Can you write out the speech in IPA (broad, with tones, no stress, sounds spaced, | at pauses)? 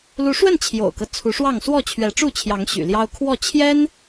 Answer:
l u˨˦ ʂ w ə˥˨ n t͡ɕʰ j o̰˨˩ ʊ̯ k ɤ˦ t͡sʰ u˨˦ ʂ w ɑ˥˨ ŋ s w ɔ˥˨ t͡ɕʰ ɥ ɛ˨˦ ʈ͡ʂ u˥˨ t͡ɕʰ j ɑ˨˦ ŋ ɕ y̰˨˩ l j ɑ˦ ʊ̯ kʰ w ɔ˥˨ t͡ɕʰ j ɛ˦ n